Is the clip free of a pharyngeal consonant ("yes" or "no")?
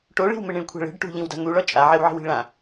no